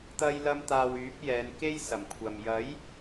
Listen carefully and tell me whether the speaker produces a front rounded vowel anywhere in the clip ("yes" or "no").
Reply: yes